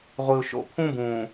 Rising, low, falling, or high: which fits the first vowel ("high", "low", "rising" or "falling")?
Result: low